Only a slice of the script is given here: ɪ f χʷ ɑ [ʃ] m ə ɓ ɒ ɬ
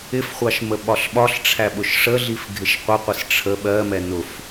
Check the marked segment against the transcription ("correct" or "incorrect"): correct